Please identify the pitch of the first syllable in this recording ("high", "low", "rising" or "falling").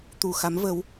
low